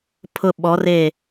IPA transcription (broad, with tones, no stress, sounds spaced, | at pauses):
pʰ ʊ˨ ɓ ɔ˨˦ r e˦˨